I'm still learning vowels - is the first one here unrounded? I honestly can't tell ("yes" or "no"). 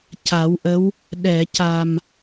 yes